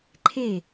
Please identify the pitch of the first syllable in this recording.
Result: falling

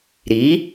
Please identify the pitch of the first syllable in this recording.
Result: rising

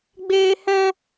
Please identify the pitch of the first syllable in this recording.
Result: high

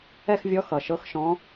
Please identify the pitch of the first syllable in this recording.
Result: falling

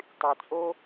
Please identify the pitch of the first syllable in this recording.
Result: low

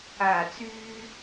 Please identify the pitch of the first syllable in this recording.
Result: low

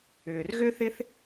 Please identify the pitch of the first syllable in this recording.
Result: low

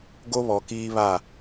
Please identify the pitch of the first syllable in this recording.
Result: high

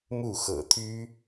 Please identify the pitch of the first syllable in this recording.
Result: falling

